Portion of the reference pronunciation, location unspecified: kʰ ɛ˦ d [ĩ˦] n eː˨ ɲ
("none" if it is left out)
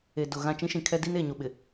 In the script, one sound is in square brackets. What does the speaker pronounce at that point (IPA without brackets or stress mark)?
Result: i˦